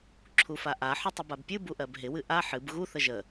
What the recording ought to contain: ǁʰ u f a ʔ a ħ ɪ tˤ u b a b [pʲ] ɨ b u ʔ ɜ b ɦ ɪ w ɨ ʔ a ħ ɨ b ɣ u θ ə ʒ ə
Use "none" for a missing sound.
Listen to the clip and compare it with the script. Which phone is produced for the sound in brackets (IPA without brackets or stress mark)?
pʲ